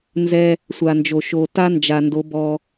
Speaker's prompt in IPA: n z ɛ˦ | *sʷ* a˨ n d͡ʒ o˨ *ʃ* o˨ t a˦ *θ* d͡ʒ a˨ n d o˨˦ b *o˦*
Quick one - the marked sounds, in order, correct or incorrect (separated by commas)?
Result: correct, correct, incorrect, incorrect